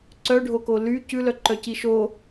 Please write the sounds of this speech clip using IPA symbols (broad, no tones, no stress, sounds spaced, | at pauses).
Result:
ǀ œ ɖʱ o k o l y c ʉ l œ ǃ œ c i ʃ o